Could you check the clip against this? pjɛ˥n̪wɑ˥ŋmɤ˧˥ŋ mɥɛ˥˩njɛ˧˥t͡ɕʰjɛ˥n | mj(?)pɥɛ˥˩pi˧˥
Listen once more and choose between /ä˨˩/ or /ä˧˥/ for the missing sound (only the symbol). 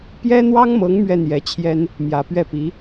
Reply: ä˨˩